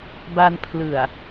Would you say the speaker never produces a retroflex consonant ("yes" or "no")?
yes